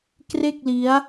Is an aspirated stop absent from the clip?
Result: yes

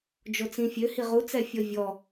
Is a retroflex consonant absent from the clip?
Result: yes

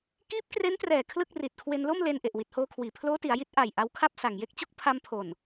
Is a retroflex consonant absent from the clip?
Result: yes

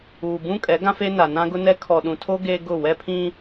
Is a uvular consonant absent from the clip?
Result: yes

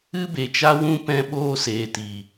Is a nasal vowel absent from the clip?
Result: no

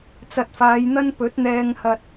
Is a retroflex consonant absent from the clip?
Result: yes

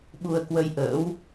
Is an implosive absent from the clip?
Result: no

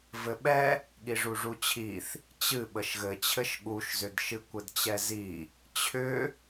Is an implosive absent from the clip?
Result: no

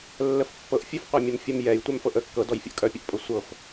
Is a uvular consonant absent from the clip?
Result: no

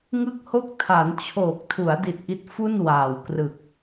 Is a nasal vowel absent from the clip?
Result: yes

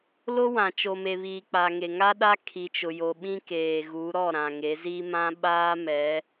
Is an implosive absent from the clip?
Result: no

